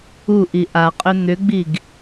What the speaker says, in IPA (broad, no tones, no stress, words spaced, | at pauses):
uʔi ʔaqʼʏ n̪ʏɡ͡biɡ